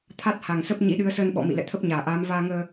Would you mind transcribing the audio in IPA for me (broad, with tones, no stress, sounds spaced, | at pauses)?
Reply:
t̪ʰ a˦˥ t̚ h a˨˩ ŋ s ə˦˥ p̚ ɲ ḭ˧˥ ɗ ɨ˨˦ ə̯ s əː˧ n ɓ ɔ̰˧˨ m ḭ˧˨ l ɛ̰˧˨ t̪ʰ ə˦˥ p̚ ɲ aː˧˩ ʔ aː˨˦ m v aː˧ ŋ əː˧